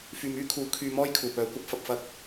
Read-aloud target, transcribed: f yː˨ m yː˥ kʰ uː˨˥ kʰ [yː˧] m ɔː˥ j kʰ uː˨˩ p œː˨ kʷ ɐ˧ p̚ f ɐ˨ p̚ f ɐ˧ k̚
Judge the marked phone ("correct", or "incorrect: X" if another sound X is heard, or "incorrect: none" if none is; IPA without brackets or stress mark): correct